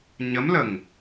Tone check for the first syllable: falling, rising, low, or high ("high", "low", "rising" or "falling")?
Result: rising